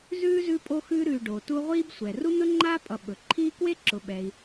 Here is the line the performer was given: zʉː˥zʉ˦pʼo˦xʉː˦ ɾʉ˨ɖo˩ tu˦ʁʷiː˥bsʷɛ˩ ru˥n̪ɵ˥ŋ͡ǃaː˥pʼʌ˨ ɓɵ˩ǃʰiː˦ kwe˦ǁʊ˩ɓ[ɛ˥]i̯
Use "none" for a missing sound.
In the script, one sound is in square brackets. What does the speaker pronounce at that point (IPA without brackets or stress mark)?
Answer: ɛ˩